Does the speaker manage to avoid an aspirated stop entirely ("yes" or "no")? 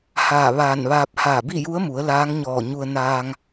yes